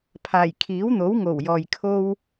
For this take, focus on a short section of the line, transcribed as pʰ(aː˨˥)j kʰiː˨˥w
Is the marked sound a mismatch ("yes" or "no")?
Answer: yes